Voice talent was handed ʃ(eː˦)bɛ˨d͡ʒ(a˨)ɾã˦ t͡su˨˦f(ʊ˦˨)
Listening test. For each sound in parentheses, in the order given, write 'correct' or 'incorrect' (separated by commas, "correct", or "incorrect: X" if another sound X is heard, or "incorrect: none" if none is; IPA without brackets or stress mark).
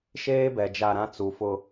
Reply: correct, incorrect: a˦˨, incorrect: ʊ˦